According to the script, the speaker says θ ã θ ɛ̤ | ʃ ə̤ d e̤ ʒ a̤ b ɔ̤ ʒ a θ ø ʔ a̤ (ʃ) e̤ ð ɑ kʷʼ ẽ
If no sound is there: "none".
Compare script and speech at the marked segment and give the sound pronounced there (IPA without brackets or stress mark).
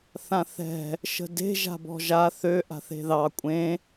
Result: θ